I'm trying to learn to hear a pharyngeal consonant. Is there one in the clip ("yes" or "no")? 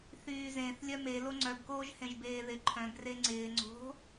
no